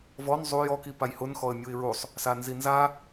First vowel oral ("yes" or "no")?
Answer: yes